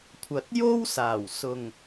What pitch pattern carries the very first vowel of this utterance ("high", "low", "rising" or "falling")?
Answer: low